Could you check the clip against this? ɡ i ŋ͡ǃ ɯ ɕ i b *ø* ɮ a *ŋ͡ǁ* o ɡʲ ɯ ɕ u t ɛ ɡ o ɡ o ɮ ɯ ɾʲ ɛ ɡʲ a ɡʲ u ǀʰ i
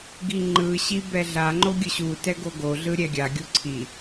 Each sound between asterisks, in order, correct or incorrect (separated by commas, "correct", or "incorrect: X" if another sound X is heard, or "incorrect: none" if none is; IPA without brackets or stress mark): incorrect: ɛ, incorrect: ŋ͡ǃ